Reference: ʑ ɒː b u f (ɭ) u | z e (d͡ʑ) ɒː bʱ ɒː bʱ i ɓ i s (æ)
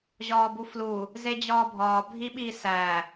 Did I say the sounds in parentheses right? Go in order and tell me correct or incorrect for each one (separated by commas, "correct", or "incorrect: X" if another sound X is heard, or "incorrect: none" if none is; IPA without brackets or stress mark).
incorrect: l, correct, correct